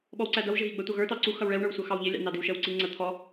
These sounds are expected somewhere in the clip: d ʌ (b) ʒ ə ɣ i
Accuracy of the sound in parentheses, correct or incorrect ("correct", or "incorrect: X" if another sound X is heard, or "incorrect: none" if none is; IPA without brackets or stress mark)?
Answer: incorrect: w